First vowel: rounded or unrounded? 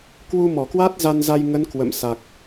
rounded